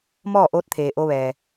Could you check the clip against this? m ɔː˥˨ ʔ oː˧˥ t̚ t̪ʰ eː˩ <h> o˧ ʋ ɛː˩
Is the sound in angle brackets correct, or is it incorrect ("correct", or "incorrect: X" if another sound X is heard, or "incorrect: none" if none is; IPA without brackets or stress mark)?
incorrect: ʔ